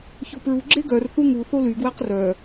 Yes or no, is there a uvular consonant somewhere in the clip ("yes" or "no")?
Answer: yes